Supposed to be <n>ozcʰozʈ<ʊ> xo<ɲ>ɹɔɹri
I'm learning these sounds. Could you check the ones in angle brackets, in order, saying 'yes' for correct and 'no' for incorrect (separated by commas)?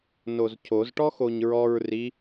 yes, no, yes